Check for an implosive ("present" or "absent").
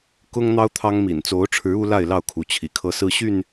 absent